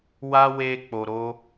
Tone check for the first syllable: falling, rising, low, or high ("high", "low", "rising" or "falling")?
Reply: high